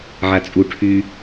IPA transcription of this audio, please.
ʕ a t͡sʼ u ʈʰ y

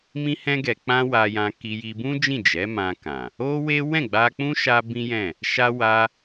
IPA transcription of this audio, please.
m ĩ˦ h ɛ̃˦ ɡ ɛ˧ k͡p ã˦ w a˧ j ã˧ k i˧ j i˧ b ũ˦ d͡ʒ ĩ˦˨ d͡ʒ ɛ˨˦ m ã˧ k ã˨ | o˦ w e˦ w ɛ̃˦˨ ɡ͡b a˧ k͡p ũ˦ ʃ a˦ b ĩ˦ j ɛ̃˦˨ | ʃ a˧ w a˧

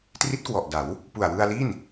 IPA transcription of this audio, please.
t r i˦˥ t̚ k w ɔ˨˩ ʔ d a˩˦ w | p u˨˩ a̯ w ɯ˧ a̯ l i˥˩ n

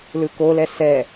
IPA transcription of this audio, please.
l ɯ k o l ɛ s ɛ

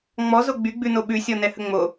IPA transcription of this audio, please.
ŋ͡m ɔ z o ɡ͡b y ɡ͡b ʉ n o ɓ ʉ sʲ ɔ n ɛ h ə ŋ͡m o

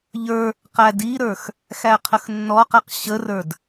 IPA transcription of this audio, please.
ʎ ə˞ | q æ d i ɾ ə˞ x | x æ qʰ ə x nː ɔ q æ q ɕ ə r ə˞ d

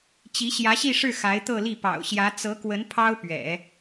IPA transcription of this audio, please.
t͡ɕ i˧˥ ɕ j ä˧˥ ɕ i˥˧ ʂ ɻ̩˥˩ x a˧˥ ɪ̯ t̪ ɤ˥˧ l i˥˩ p ɑ̰˨˩ ʊ̯ ɕ j ä˧˥ t͡s ɤ˧˥ k w ə˧˥ n pʰ ɑ˥ ʊ̯ p ɥ ɛ̰˨˩˦

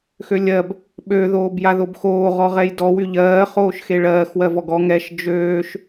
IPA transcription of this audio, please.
x ø lʲ ɜ b | ɓ ø ð oː b j a ð o b x oː ʁ ɔ ʁ ɛ j d ɔ w y ʎ ɜː χ oː ʃ x e ɭ ɜː x w ɜ v ɔ ɡ ɔ ŋ ɛ ʃ d͡ʒ øː ʃ

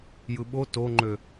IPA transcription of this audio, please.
j ɯ ɓ o t o ŋ͡ǃ ø

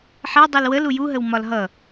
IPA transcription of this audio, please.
ħ ɛ dˤ u l w ə l u j u ɦ ə w m ɒ l ɦ ʌ

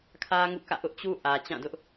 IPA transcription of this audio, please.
kʰ ä˦ ŋ ṵ˦˨ k ä̰˦˨ ʔ ʊ˦ ʔ t͡ɕ u˦ ʔ ä˨ t͡ɕ ã˦˨ d ʊ˦ ʔ

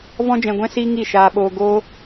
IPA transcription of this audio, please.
v ɔ̃˦ d͡ʒ ɛ̃˧ ɡʷ ɛ̃˦ s i˦ ŋ i˦˨ ʃ aː˧ ɓ oː˧ ɡ o˦

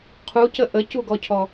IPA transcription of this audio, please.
qʰ u c ə ʔ ə c u ɡ ɔ cʰ ɔ

